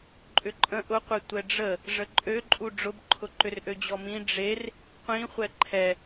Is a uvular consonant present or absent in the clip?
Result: present